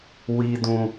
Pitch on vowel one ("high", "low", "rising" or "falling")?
high